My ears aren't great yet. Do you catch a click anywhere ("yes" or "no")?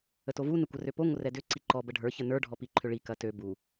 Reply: yes